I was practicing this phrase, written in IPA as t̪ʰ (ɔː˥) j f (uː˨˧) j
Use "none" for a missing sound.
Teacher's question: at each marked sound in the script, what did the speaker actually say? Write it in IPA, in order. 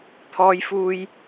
ɔː˥, uː˥

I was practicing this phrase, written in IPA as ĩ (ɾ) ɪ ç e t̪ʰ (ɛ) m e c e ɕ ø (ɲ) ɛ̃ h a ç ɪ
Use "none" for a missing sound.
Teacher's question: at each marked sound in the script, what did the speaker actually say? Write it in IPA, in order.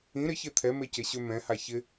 ɾ, ɛ, m

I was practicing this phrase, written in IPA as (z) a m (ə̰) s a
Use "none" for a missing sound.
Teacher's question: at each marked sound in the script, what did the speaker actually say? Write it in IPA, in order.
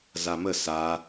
z, ə

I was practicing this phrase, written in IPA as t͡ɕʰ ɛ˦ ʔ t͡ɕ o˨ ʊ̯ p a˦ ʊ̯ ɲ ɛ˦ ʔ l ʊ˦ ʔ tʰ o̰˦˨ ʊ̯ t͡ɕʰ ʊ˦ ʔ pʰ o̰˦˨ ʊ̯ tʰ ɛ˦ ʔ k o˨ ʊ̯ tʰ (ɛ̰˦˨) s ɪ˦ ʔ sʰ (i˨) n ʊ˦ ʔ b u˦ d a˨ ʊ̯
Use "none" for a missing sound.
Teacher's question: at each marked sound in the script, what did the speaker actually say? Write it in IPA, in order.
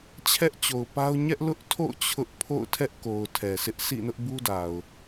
ɛ˨, ḭ˦˨

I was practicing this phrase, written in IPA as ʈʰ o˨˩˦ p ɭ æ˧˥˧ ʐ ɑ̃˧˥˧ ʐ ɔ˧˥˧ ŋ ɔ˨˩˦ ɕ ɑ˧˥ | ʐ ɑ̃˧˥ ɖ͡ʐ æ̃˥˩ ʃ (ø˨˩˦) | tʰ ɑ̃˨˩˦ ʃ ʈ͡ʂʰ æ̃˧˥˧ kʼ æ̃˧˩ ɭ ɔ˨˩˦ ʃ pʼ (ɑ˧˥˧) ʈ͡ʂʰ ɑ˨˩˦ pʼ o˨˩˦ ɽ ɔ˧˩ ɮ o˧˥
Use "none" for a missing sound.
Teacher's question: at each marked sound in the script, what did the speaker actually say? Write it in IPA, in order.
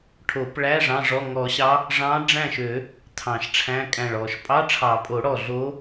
ø˨˩˦, ɑ˧˥˧

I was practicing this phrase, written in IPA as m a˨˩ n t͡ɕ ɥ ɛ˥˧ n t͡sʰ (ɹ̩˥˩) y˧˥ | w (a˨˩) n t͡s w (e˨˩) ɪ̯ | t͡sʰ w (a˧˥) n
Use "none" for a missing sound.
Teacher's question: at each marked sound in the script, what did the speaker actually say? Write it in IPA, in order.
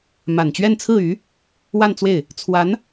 ɹ̩˥˩, a˥˧, e˥˩, a˧˥

